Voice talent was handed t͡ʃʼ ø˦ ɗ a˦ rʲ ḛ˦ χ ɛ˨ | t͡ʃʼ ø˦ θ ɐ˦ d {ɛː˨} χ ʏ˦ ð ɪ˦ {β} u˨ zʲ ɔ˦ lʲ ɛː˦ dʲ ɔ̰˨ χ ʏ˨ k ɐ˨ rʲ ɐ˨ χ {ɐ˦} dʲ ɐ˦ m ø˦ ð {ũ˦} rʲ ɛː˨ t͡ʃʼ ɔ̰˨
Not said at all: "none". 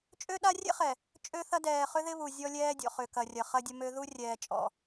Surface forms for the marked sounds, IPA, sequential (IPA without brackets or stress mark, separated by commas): ɛː˨, β, ɐ˦, u˦